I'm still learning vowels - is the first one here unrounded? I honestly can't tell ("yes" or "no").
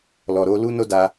no